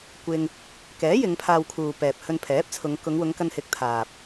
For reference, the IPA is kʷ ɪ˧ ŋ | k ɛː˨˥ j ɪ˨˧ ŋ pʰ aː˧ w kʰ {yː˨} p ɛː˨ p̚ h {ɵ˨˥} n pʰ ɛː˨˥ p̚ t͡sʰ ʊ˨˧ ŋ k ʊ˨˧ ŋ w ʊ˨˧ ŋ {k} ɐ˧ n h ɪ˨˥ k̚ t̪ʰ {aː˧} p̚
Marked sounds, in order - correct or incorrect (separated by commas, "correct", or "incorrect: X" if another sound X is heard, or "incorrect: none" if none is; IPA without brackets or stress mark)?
incorrect: uː˨, incorrect: ɵ˧, correct, incorrect: aː˨